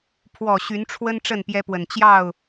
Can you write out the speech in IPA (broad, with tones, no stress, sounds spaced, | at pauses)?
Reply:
pʰ w ɔ˨˩ ɕ y˨˦ n ʈ͡ʂʰ w ə˦ n ʈ͡ʂ ə˥˨ n p j ɛ˦ p w ə˨˩ n t͡ɕ j ɑ˥˨ ʊ̯